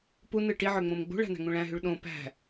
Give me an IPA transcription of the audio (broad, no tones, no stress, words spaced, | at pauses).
punɯ ʈiʕø ŋ͡mõmɡ͡bṳɭæ̤ n̪æ̤ŋũɭæ̃ɦyɭ ɗõ pæ̤